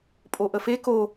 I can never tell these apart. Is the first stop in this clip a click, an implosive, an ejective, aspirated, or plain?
ejective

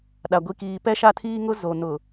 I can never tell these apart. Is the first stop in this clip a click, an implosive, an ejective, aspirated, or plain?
implosive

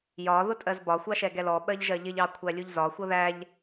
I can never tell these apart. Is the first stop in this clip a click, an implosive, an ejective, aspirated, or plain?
ejective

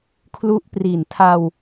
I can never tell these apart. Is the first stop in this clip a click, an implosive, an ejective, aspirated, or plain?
aspirated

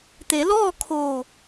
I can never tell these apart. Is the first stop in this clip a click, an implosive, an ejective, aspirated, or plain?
plain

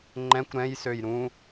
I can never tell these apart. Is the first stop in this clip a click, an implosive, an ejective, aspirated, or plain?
click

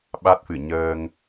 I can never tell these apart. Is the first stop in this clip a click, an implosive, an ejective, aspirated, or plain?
implosive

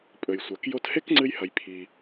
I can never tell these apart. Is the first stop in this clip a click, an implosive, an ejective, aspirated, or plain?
ejective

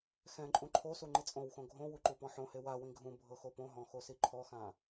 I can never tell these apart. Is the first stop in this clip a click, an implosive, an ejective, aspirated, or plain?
click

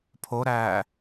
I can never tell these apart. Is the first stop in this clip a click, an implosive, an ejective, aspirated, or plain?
aspirated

